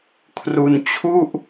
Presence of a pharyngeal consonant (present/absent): absent